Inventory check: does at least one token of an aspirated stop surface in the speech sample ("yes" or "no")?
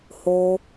no